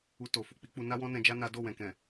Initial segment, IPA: u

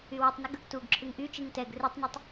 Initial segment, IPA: y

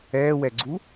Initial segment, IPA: ɛː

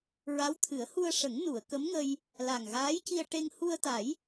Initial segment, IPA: ɹ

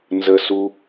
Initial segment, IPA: n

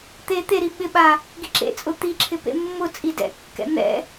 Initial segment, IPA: t̪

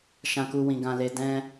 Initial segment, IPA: ʃ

